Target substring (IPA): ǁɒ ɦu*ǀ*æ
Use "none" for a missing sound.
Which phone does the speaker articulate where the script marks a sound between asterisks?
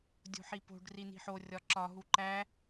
ǃ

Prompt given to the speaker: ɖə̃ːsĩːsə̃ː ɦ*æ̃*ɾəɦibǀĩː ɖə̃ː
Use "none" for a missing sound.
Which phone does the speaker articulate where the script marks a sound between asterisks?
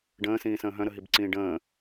œ̃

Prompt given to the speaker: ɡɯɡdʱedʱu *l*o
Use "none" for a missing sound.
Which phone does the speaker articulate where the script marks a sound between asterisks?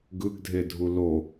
l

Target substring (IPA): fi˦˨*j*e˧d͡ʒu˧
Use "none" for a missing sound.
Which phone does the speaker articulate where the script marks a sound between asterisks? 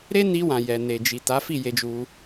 j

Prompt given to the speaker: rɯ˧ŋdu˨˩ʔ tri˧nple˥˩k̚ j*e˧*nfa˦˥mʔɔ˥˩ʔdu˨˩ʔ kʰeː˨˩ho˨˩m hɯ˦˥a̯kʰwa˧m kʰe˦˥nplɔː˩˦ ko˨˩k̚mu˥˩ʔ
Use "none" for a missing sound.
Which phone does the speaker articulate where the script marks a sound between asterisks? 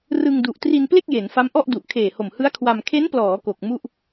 e˩˦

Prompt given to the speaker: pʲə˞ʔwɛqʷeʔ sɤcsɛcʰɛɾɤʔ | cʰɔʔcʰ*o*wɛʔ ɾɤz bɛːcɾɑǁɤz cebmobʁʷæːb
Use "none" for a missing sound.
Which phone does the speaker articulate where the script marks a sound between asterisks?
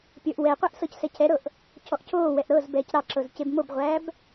oː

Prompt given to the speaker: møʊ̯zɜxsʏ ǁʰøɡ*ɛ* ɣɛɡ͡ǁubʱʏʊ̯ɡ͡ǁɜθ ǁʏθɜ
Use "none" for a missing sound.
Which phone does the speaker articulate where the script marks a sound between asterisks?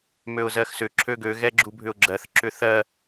ø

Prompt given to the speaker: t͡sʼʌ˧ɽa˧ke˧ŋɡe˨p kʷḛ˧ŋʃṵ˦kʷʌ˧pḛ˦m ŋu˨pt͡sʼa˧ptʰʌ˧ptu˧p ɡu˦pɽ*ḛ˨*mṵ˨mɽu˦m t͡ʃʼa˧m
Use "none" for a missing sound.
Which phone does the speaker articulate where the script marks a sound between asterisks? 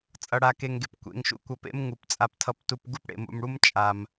ḛ˨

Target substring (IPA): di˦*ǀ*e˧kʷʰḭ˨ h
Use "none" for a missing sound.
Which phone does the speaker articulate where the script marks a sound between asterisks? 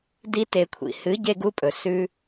t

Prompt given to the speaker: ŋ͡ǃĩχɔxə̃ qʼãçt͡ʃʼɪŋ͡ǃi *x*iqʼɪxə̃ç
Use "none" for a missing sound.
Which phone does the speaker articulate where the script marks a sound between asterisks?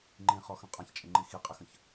x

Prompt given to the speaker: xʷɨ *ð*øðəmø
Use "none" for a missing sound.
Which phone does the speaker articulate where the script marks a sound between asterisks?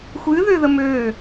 ð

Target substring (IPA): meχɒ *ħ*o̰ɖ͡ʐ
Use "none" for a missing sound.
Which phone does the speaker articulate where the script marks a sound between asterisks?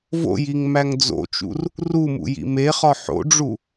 ħ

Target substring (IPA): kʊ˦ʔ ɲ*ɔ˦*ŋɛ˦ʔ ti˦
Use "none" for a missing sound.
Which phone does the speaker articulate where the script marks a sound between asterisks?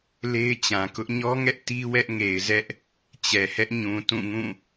ɔ˦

